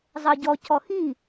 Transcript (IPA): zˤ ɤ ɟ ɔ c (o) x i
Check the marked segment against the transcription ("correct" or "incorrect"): incorrect